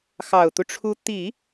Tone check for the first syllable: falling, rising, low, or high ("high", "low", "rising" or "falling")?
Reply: low